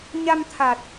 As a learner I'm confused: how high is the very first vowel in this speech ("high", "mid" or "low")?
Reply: low